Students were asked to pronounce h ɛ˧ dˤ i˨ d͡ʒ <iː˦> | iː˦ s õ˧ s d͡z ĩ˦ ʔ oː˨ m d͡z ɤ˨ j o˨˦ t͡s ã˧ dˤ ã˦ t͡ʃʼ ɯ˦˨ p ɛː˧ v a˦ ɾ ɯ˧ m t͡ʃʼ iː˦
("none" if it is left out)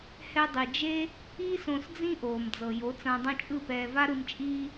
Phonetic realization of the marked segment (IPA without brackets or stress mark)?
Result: eː˦